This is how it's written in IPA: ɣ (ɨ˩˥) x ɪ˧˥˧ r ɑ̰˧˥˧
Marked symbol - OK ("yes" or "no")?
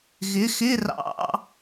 no